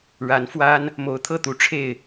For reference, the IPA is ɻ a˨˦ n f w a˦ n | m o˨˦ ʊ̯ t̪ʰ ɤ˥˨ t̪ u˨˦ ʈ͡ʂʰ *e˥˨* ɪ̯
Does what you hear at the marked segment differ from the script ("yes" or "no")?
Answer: no